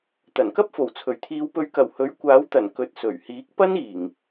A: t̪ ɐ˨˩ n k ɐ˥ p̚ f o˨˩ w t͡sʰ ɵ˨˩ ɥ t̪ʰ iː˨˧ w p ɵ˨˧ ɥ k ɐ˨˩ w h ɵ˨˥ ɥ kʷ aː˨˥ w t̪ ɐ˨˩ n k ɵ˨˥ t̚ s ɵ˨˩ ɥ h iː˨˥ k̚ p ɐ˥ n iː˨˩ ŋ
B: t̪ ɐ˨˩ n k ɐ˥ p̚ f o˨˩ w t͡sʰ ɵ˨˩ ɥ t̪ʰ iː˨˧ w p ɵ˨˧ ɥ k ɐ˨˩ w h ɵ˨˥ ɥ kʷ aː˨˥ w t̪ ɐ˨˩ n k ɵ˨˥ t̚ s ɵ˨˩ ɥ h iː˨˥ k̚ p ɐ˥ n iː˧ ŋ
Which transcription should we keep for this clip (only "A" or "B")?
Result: A